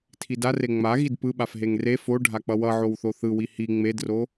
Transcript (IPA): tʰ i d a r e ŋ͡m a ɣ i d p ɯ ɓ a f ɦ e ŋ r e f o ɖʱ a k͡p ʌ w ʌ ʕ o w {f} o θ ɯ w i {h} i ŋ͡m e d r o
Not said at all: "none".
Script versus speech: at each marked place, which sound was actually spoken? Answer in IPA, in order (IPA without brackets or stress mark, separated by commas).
θ, h